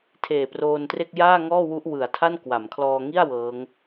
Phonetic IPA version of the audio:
tʰ eː˨˩ p r oː˧ n t r e˥˩ k̚ j aː˥˩ ŋ ɔː˥˩ w u˦˥ ʔ w ɯ˨˩ a̯ tʰ a˥˩ n k w a˩˦ m kʰ l ɔː˧ ŋ i˥˩ a̯ w ɤː˦˥ ŋ

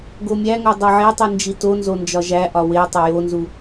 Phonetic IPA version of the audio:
ɡ o mʲ æ ŋ o dˤ e ʕ e tˤ i n d͡ʒ i t o n z o n d͡ʒ ɒ ʒ æ ʔ ɒ w e tˤ o j o n z u

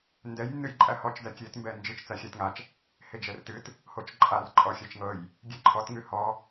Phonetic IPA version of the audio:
n d ɛ j nː ɨ j ǃʼ æ h ɔ t͡ʃ d æ kʲ e t m b ɛ n d͡ʒ ɨ t͡ʃ t͡s æ xʲ æ t ŋ a t͡ʃ | h e d͡ʒ ɛ r t ɨ t | h o t͡ʃ ǃʼ a r ǃʼ ɔ xʲ æ t͡ʃ ŋ ɤ j | ɡʲ e ǃʰ ɔ t ŋ ɨ h ɔ

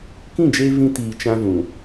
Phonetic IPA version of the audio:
k ĩ˦˨ d͡ʒ eː˦ v ĩ˦ t iː˨ t͡ʃ ã˦ v ũ˨

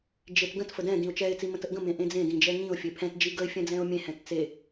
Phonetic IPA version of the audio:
d͡ʒ e t ɡ ə̃ t f ə d ɛ̃ d ĩ ʊ̯ t͡ʃ ɛ ɪ̯ t͡s i m ə̃ t ə ʔ ɡ ə̃ m ẽ ʔ ẽ d͡z ẽ d ĩ d͡ʒ ɛ ŋ ĩ ʊ̯ fʲ e pʰ ɛ̃ t d͡ʒ i ɡ ə ɪ̯ fʲ ɛ̃ d͡z ɛ̃ ʊ̯ mʲ ẽ h ɛ̃ t t͡s e

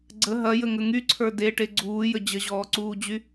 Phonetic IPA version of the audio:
ɡ͡ǀ ə ɦ ɐ j ə ŋ ə ŋ y ǀʰ ə˞ d e ʈ e ɡ͡ǀ uː j ə d͡ʑ ə ʑ ɔː ǀ uː d͡ʑ y

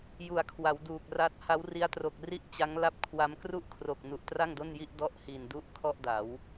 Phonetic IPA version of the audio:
j u˨˩ a̯ kʰ w a˩˦ w d uː˨˩ k̚ r a˦˥ t̚ h a˦˥ w r i˦˥ a̯ t r o˨˩ k̚ r i˥˩ ʔ t͡ɕ a˦˥ ŋ l a˥˩ p̚ kʰ w a˦˥ m k r u˥˩ ʔ kʰ r o˨˩ k̚ n u˨˩ ʔ t r a˥˩ ŋ d o˥˩ n j i˥˩ ʔ d ɔ˥˩ ʔ h i˨˩ n d u˥˩ ʔ kʰ ɔ˥˩ ʔ d a˩˦ w

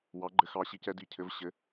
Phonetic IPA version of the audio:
w ɑ˩˥ ɡ͡ǃ ɘ˩˥ x ɑ˩˥ ɕ i˩˧ c ɛ˩˧ d i˩˥ cʰ ɘ˩˧ v ɕ ɘ˩˧

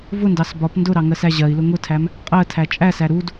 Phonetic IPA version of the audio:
v ʊ n d ɑ s b ɒ p n d ʊ ɾ ɑ ŋ ɜ s æ ʑ ɜ i̯ l ʊ ŋ ʊ tʰ æ m | qʼ ɜ tʰ æ t͡ʃʼ æ s æ ɾ u d

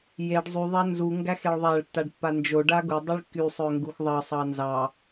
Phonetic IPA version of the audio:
j e ɖ zˤ y ðˤ æ n z u ŋ ɡ æ x e ɭ ðˤ a ɭ tː a ɖ pː a n d͡ʒ o ɖ a ɡ u dˤ y ɭ kː y sˤ œ ŋ ɡ u x ðˤ ɑ sˤ ɑ n z ɑ

